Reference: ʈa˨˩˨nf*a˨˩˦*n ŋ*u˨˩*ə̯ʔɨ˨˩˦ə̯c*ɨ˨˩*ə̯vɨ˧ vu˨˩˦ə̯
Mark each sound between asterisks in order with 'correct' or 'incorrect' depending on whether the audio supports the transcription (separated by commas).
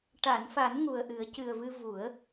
correct, correct, correct